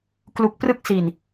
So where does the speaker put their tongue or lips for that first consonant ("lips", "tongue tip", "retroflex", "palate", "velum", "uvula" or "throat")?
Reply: velum